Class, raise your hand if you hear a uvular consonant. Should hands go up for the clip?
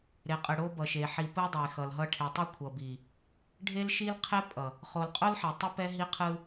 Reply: yes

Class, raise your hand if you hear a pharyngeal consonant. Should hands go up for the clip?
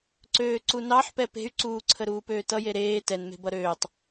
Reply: yes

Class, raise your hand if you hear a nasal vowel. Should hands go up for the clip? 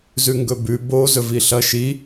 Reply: no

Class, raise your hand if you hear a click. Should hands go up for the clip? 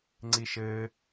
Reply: yes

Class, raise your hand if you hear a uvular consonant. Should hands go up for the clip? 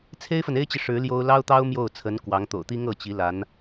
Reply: no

